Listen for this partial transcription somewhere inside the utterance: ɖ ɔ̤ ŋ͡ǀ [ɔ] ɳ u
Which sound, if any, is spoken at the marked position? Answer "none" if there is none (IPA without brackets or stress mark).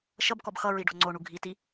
o